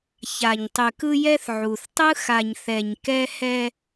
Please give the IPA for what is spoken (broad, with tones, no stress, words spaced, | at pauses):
ça˨ɲtˤʉ˨kɯ˦jɛ˦θ ʕu˨θ tˤɯ˦xa˨ɲ θɛ˨ɲ kɛ˦hɛ˦